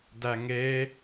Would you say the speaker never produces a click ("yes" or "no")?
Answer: yes